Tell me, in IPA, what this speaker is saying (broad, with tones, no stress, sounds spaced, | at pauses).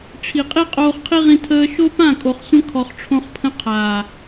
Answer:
ʈ͡ʂʰ i˨ qʼ i˦ qʼ oː˧ χ qʰ i˦ ʁ ĩ˧ tʰ əː˧ ʃ o˦ p ã˦˨ kʼ o˨ χ sʷ ə̃˧ kʰ ɔ˨ χ ʈ͡ʂʰ õ˧ χ pʰ ə̃˧ qʰ aː˨